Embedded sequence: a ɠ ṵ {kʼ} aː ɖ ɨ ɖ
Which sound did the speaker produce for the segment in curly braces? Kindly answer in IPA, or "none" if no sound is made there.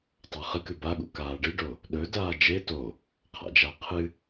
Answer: k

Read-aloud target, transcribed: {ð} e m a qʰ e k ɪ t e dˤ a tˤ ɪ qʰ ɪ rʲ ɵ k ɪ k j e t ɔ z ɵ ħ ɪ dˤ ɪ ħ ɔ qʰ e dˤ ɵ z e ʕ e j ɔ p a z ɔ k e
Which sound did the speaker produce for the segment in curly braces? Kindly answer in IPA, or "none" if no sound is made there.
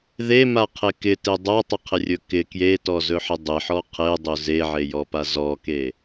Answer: ð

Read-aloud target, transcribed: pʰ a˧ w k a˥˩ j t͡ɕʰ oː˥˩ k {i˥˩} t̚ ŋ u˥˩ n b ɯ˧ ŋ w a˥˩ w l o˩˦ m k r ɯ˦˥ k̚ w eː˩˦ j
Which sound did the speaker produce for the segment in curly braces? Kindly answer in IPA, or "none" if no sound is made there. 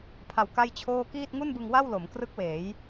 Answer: iː˥˩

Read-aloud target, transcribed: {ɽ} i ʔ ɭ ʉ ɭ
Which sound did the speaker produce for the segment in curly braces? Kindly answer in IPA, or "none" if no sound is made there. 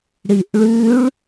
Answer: ɽ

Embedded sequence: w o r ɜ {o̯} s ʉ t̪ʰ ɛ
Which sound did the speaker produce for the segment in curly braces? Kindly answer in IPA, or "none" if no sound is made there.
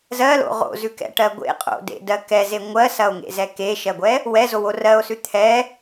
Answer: o̯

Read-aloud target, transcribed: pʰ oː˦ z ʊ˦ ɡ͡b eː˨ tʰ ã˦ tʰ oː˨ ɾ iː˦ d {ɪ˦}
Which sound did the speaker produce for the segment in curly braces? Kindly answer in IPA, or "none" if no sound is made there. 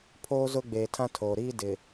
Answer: ɪ˨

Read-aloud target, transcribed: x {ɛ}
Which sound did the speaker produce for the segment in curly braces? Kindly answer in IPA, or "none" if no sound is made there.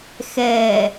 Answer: ɛ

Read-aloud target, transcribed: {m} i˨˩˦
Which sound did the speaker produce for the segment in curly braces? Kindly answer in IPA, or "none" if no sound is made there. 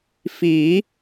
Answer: f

